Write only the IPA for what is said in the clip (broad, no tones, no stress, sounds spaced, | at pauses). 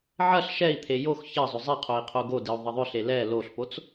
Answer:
ʕ ɐ ɬ ʃ ɛ i̯ t̪ʰ e j o x ç ɐ zˤ ʏ zˤ i qʰ o i̯ qʰ o ɡ o d i u̯ ðˤ ɐ ðˤ ʏ ɬ e l ɛ l o ɬ p o t͡s